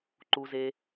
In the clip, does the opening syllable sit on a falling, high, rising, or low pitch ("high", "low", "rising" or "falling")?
low